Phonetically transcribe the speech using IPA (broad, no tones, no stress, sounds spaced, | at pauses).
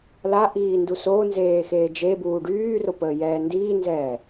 l a ʔ iː n d u s o n z eː x eː d͡ʒ e b uː ɖ yː r o p əː j ɛː n d iː n z ɛː